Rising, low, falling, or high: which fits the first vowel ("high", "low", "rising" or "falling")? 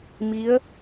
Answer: rising